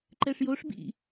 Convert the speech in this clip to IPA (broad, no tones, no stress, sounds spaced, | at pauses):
ǃ ɛ ʂ j o ʂ b ḭ